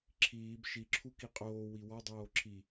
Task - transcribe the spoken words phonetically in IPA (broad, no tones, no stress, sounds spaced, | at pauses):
ǁʰ iː b ʃ i ǁʰ u k i qʼ oː w i w ɒ dˤ oː ǁʰ i